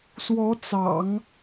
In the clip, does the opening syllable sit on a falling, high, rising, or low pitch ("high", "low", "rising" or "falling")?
rising